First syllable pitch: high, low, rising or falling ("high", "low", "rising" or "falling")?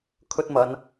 high